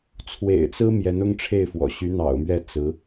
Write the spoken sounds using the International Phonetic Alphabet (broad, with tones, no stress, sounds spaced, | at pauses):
t͡sʰ w ḛ˨˩ ɪ̯ t͡s ɹ̩˥ m j ɛ˧˥ n ʊ˥ ŋ ʈ͡ʂʰ e˥˩ ɪ̯ f w ɔ̰˨˩ ɕ y˧˥ n̪ ɑ̰˨˩ ʊ̯ m ɥ ɛ˥˩ t͡s ɹ̩˧˥